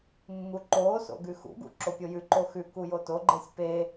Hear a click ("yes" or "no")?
yes